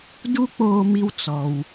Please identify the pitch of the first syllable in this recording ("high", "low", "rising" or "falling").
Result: high